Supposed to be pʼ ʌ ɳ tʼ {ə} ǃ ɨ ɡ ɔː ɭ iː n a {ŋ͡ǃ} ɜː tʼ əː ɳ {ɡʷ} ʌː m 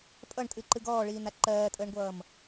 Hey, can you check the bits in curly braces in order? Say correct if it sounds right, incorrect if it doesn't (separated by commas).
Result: incorrect, incorrect, correct